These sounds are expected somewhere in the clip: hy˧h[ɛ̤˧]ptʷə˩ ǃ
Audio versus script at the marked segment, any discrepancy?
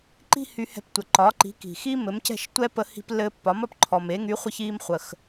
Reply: no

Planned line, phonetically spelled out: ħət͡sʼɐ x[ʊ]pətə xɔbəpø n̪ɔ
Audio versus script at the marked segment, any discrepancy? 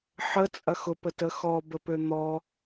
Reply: no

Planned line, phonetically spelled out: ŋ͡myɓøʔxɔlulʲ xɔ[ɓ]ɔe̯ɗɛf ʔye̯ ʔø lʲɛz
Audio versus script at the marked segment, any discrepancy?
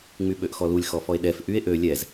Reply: yes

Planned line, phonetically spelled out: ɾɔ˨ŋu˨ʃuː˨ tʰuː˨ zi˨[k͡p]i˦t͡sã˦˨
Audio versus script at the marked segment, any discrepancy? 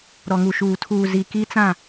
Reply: yes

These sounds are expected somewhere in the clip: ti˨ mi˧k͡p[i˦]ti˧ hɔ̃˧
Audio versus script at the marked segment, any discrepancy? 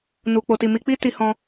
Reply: no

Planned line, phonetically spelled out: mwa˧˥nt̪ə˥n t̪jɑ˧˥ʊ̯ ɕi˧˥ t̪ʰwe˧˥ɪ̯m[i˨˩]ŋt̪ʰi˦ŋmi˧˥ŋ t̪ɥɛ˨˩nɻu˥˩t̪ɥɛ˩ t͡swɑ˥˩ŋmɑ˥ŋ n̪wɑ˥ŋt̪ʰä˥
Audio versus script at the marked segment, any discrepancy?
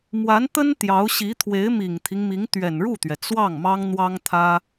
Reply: no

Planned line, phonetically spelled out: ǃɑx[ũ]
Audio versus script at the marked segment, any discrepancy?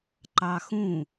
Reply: no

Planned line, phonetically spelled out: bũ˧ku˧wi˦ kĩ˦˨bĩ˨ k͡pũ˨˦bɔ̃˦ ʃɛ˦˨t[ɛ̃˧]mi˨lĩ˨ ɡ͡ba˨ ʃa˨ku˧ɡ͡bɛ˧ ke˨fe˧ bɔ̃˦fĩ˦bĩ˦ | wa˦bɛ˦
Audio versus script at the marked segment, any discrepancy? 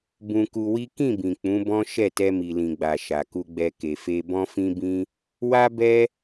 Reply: yes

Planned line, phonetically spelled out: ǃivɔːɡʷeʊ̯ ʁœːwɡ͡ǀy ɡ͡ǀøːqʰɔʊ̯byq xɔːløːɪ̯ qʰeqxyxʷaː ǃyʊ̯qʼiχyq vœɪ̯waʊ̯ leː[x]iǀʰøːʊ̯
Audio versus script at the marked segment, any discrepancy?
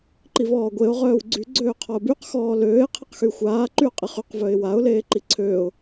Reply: yes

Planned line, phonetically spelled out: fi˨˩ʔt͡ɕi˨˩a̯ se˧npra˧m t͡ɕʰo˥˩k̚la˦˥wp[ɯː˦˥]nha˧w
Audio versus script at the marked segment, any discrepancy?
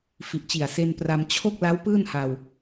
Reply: yes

